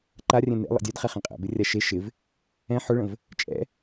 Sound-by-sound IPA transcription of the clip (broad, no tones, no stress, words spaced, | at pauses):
ǃarʲɛ̃ nḛ lˠḛdʲødχɛ χẽqʼɛ̰bɪ rʲaʃe ʃɪv | ɛ̃ ħʊɭə̃v | t͡ʃʼɛ̰